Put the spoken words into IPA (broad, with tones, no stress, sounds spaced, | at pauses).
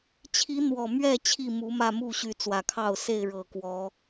t͡ɕʰ i˨˦ n̪ w ɔ˨˩ m ɥ ɛ˥˨ t͡ɕʰ i˥˨ m u˨˦ m ä˥˨ m u˥˨ ɕ y˨˦ t͡s w ä˨˩ kʰ ɑ˥˨ ʊ̯ s e˥˨ ɪ̯ ɻ ɤ˨˩ k w ɔ˨˦